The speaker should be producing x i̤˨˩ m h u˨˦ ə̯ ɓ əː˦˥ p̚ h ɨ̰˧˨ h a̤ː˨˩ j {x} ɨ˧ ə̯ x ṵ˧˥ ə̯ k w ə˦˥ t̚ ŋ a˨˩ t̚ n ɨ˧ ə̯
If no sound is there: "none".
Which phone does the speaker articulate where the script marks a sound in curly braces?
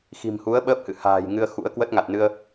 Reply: ŋ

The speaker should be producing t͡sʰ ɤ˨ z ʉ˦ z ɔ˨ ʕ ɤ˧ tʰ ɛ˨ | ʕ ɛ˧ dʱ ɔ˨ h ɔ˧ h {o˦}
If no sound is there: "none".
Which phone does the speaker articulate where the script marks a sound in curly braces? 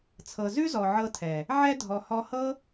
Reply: ɤ˦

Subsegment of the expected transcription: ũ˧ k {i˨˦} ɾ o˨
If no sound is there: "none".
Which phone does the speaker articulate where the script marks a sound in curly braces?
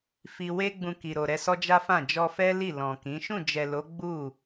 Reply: i˨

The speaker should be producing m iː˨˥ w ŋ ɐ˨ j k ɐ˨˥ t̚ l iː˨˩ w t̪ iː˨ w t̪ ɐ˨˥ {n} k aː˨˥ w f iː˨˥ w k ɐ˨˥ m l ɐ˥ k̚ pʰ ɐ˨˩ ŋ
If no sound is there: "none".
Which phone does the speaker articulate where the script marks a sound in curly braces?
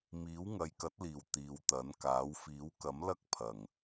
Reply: n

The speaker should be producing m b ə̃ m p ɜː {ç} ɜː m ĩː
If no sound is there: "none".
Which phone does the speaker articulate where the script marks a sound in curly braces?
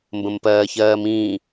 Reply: ç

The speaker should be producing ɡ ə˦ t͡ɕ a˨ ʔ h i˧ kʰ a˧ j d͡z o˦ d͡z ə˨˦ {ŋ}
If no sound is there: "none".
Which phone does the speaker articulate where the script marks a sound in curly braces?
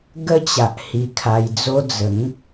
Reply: ŋ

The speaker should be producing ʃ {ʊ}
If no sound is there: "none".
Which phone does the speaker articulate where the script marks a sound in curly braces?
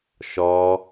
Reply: ɔ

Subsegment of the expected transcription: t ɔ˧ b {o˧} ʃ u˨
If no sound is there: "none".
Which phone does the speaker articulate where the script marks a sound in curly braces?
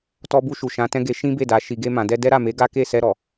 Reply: u˧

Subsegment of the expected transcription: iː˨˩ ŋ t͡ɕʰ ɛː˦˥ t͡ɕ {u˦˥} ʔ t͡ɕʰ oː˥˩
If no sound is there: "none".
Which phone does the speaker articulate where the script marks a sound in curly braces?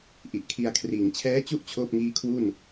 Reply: u˦˥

